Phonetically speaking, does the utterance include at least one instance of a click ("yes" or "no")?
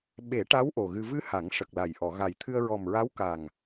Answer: no